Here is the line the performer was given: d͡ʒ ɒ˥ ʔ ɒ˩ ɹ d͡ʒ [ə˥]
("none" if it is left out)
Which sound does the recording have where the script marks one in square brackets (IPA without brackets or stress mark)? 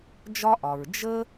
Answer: ə˥